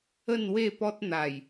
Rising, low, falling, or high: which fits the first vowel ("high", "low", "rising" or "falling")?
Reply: falling